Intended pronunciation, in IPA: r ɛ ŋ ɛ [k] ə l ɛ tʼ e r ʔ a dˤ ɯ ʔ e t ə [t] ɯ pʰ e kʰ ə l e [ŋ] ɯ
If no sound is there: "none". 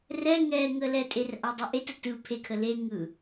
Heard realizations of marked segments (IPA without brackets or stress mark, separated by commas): ŋ, t, ŋ